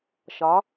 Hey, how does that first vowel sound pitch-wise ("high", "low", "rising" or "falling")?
rising